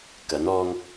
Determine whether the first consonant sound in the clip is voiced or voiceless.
voiceless